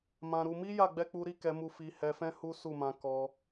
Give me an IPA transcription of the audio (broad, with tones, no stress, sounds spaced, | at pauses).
m ã˧ ɾ u˧ m i˦ j a˦˨ ɡ͡b ɛ˧ k͡p u˧ ɾ i˦ k ɛ˧ m u˧ f i˧ h ɛ˧ f ɛ̃˦ h u˦ s u˦˨ m ã˧ k ɔ˧